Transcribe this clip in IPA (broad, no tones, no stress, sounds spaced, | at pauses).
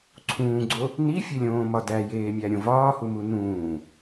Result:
ǀʰ ũː ɡ͡ǀ o | n i fʲ e lʲ õː m ɒ d æ j eː mʲ æ ɾʲ õ v ɒː h u m u n ũː